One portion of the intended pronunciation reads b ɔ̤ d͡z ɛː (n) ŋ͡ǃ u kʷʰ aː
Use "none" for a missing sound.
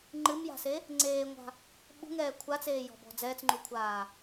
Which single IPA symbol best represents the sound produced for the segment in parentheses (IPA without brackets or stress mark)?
t͡s